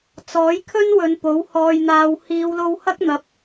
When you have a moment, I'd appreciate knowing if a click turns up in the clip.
no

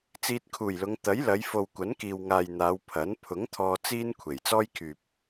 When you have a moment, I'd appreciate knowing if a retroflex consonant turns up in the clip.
no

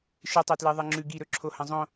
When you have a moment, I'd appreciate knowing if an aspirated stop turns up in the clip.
yes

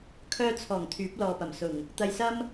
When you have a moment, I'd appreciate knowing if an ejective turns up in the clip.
no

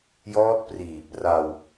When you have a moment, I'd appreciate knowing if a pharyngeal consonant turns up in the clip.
no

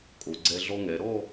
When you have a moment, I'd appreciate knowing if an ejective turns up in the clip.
yes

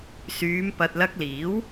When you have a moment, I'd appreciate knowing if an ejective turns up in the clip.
no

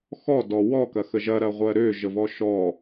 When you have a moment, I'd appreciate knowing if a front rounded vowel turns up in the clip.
yes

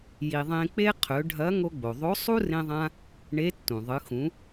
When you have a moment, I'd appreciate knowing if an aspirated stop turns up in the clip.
yes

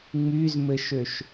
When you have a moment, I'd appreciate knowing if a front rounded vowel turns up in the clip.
yes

